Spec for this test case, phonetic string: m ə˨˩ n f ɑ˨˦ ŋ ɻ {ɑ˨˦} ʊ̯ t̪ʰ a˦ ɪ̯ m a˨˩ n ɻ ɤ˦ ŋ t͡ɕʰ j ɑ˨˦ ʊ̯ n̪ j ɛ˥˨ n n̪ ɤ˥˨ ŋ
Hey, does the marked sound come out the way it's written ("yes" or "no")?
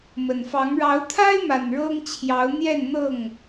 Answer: yes